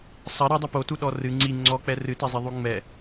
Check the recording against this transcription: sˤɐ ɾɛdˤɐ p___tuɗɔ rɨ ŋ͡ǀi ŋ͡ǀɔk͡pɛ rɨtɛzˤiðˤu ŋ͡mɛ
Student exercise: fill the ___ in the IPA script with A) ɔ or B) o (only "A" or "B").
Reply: B